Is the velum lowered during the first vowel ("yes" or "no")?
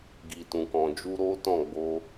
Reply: no